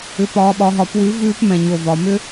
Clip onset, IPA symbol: ʏ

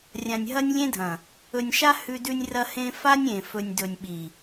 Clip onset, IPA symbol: rʲ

